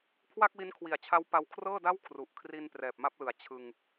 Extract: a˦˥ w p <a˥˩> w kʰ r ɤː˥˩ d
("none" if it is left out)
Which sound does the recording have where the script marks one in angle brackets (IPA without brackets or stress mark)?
a˧